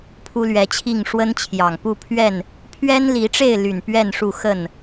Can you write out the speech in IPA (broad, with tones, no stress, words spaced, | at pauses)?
pʰu˦lɥɛ˨˦t͡ɕʰi˥˨ŋ ʂwə˦nt͡ɕʰjɑ˨˩ŋ pu˥˨pʰɥɛ˥˨n | pʰɥɛ˦nli˨˦ʈ͡ʂe˥˨ɪ̯ly˨˩n pɥɛ˥˨nʂu˥˨ xə˥˨n